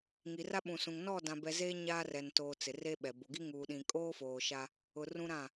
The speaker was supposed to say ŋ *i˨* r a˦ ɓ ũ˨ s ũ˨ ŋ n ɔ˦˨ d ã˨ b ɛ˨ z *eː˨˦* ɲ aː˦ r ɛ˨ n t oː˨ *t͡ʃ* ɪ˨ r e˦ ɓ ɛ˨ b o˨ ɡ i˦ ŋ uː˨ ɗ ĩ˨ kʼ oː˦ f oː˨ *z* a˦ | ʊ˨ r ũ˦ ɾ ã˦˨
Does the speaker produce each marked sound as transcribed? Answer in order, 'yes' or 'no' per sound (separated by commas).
yes, no, no, no